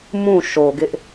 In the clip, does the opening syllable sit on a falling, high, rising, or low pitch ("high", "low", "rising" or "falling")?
falling